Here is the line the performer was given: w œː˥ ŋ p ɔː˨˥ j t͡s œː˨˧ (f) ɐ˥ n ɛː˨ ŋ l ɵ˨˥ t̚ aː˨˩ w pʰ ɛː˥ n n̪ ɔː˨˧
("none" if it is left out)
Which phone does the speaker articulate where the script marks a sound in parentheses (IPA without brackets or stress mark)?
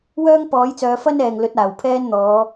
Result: f